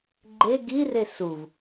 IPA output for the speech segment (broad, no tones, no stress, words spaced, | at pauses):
ɡ͡ǃe ɡire suv